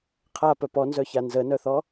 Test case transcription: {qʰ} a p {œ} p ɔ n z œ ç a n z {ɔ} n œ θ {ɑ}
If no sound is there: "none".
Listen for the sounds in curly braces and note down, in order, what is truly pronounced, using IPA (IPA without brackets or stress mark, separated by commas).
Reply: qʰ, œ, ə, ɔ